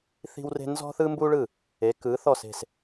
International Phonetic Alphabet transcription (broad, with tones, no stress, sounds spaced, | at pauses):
θ i̤˥ w r e̤˥ n z ɔ̤˥ θ ɯ˥ m b u˥ ɭ ɯ˥˩ | e˩˥ k ɯ˩˥ θ ɔ˥˩ s e̤˥˩ s